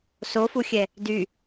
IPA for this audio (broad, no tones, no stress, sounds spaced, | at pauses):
s o f u xʲ ɛ | d y